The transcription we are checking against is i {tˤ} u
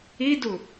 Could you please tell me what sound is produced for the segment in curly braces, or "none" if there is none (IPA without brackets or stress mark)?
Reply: d